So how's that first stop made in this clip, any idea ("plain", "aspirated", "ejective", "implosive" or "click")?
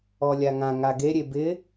plain